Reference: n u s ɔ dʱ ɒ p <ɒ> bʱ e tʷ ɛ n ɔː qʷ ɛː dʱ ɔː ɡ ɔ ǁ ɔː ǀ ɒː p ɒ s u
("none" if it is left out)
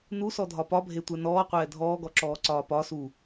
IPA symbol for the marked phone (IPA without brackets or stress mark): ɒ